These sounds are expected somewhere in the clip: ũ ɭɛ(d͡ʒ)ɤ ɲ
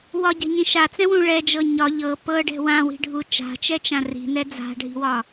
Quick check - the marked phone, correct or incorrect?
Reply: correct